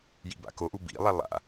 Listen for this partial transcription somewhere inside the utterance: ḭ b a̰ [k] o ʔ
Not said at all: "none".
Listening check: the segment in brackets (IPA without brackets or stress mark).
k